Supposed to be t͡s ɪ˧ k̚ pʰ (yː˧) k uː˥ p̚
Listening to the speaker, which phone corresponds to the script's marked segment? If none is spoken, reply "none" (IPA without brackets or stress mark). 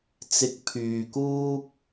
yː˧